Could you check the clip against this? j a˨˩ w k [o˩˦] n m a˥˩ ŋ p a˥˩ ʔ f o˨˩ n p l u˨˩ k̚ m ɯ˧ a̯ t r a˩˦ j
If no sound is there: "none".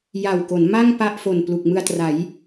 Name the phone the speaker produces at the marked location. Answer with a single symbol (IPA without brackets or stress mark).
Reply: o˩˦